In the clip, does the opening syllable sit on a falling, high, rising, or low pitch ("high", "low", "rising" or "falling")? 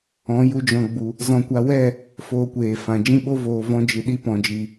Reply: rising